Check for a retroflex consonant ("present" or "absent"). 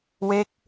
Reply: absent